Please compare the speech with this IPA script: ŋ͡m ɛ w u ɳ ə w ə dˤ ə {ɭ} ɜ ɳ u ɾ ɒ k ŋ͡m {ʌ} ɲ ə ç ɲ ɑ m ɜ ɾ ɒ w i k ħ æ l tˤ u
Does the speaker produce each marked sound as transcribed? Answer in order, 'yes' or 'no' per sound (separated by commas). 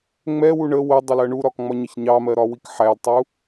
no, no